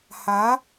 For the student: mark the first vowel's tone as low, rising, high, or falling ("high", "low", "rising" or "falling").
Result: rising